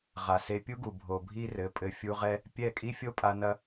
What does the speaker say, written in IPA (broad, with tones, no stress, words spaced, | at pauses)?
ʁa˨se˧pʲu˦ɡu˨ bʱo˨bʱi˦rɘ˨˦ pʼɘ˨fʲu˧ʁɛ˦ | pʲɛ˦˨ kʼi˦fʲo˦pʼa˧ nɐ˦